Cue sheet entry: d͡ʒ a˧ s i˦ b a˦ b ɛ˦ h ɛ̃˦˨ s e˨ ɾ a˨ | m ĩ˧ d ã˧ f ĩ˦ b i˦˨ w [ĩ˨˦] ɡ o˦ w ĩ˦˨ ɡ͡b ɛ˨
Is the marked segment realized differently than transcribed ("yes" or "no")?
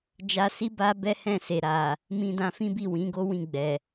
no